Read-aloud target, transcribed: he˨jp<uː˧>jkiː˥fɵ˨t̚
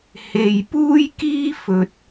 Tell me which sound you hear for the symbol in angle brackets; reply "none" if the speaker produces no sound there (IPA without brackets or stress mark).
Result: uː˥